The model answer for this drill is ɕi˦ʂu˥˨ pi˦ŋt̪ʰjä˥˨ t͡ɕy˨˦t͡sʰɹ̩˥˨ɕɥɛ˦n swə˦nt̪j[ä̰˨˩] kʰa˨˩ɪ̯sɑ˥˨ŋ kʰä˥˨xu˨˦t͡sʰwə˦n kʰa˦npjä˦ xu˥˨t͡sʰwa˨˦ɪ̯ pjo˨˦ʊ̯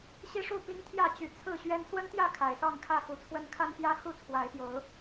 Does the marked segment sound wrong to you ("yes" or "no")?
yes